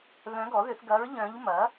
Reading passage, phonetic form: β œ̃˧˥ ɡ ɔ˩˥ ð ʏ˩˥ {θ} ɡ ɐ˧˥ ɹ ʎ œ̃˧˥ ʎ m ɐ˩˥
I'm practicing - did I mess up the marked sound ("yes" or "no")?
no